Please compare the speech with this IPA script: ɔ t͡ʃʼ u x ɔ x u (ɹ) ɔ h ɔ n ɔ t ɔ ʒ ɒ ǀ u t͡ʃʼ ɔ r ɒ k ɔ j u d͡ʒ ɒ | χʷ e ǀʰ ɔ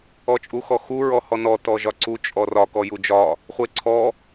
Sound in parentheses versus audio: correct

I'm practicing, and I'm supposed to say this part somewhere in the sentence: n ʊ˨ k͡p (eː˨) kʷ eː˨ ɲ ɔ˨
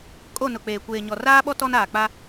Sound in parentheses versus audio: correct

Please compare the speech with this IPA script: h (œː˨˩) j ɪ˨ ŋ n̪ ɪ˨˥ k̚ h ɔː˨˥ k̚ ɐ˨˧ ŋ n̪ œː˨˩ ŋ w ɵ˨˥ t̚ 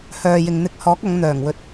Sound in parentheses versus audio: incorrect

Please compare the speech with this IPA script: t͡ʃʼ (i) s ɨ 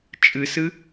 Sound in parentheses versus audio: incorrect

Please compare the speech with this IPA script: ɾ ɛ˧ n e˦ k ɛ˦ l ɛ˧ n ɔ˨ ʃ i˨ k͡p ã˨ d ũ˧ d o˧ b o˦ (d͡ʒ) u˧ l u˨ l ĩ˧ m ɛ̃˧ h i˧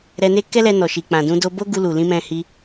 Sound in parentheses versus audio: incorrect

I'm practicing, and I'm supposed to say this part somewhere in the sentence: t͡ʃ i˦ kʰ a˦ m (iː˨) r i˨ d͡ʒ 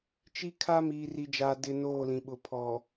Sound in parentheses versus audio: correct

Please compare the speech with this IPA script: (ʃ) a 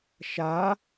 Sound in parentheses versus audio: correct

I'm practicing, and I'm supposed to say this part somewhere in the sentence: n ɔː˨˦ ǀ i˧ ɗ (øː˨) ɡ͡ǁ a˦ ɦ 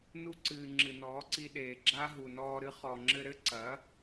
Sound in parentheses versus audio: incorrect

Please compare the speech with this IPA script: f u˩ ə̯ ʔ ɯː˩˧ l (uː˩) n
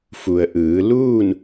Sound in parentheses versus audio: incorrect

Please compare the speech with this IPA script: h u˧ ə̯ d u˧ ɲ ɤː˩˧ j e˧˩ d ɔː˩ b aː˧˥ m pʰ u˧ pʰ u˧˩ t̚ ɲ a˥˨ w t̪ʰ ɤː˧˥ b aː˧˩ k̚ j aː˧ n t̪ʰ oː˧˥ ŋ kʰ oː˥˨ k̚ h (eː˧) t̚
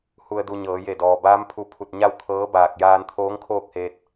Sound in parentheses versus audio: correct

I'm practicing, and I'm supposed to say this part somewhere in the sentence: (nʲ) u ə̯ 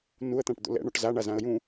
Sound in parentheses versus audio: incorrect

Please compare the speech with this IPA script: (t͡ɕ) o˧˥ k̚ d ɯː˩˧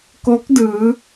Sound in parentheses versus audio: incorrect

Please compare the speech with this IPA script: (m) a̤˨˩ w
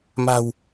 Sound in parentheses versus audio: correct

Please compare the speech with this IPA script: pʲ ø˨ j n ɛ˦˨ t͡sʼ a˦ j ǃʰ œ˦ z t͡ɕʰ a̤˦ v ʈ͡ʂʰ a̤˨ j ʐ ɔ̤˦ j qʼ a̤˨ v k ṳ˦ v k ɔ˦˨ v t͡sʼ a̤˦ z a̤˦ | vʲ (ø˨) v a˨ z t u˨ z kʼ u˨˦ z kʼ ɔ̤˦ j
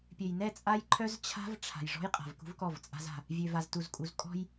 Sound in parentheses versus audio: correct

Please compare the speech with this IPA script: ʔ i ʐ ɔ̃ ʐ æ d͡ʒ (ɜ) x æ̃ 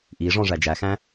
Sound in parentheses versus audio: incorrect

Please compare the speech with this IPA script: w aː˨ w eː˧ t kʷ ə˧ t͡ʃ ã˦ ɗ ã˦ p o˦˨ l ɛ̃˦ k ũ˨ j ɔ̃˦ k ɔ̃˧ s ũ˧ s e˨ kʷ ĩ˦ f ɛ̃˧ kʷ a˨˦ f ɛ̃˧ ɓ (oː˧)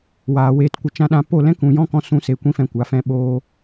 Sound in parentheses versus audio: correct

